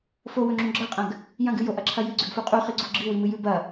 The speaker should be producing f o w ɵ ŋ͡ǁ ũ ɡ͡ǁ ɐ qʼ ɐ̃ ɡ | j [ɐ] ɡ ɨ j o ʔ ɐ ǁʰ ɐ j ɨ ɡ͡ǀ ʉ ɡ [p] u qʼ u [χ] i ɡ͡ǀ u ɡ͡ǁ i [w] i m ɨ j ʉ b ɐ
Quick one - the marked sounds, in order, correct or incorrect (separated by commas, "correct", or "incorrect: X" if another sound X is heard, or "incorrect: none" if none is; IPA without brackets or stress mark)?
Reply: incorrect: ɐ̃, incorrect: f, correct, correct